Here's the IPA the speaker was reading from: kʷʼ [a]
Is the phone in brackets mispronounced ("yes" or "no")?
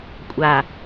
no